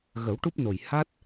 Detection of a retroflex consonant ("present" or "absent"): present